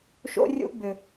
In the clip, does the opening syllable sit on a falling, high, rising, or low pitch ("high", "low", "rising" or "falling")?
high